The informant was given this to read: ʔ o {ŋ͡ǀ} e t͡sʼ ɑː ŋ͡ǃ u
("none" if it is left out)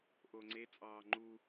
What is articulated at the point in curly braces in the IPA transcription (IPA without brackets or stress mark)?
ŋ͡ǀ